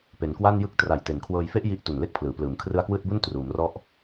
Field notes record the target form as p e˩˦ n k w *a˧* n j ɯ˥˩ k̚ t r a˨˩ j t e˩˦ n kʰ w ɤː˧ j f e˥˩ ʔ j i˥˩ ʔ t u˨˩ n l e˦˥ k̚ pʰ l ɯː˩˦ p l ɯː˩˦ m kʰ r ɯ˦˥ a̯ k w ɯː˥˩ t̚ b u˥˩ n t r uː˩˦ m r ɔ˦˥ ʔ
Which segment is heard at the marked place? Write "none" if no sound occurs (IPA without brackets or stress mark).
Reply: a˥˩